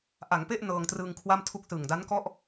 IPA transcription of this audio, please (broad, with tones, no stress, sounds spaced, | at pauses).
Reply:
ʔ a˩˦ ŋ p e˥˩ ʔ n ɤː˧ ŋ t r ɯː˧ ŋ kʰ w a˥˩ m tʰ u˥˩ k̚ s ɯ˨˩ ŋ d a˦˥ n k ɔ˥˩ ʔ